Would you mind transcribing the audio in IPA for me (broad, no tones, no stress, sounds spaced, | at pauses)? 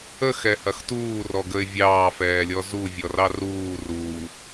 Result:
ə x ɛ h ɐ x t uː r ɔ ɡ ə ɪ̯ vʲ ɑː f ɛː lʲ ɔ z u vʲ ɔ r ɑ r uː r uː